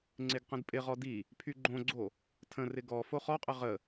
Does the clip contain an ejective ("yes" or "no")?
yes